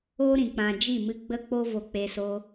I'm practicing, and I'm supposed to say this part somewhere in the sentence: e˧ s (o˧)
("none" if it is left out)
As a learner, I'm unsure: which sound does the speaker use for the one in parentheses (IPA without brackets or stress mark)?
o˧